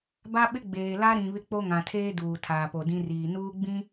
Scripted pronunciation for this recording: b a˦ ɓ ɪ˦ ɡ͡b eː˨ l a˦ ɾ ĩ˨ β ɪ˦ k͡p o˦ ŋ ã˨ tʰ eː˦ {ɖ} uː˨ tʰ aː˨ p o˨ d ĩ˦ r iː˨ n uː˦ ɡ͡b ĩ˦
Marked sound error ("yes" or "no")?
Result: yes